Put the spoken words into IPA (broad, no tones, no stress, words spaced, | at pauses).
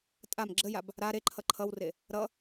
tʼam ɡ͡ǁəjab | ɾa ɾeǃʰʌ ǃʰʌwre | ɾʌ